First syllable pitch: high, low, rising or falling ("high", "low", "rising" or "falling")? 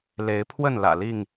rising